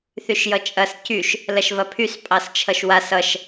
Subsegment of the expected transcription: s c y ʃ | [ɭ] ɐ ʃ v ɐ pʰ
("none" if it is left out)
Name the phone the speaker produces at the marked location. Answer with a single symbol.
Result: l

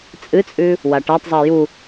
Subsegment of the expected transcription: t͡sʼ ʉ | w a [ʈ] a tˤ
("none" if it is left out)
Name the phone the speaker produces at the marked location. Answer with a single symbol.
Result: ʈ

